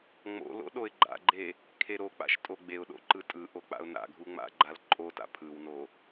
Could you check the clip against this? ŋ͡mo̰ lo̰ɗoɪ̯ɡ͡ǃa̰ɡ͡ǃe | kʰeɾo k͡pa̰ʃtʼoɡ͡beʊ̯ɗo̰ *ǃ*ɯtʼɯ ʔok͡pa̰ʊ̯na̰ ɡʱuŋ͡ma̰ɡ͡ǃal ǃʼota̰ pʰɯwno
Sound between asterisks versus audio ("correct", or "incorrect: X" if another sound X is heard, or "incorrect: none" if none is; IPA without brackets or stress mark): correct